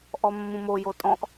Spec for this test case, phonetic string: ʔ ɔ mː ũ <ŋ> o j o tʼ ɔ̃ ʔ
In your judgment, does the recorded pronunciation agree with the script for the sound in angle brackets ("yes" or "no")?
no